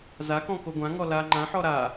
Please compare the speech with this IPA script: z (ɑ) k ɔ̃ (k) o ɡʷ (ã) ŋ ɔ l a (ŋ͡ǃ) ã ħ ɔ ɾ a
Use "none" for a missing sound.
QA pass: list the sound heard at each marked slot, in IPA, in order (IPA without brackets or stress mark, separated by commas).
a, k, ã, ŋ͡ǃ